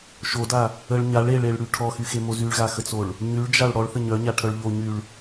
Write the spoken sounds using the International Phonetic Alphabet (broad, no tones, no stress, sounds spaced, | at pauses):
ʃ o d a | ə ɭ ɲ a ɭ e ɭ e ɭ ɽ y ʈʰ ɔ x y x e m o z y ɭ ɣ a x ə t͡s o ɭ | ɲ y ɭ d͡ʒ a ɭ ɽ ɔ ɭ θ ə ɲ œ ɲ a ʈʰ œ ɭ ʎ o ɲ y ɭ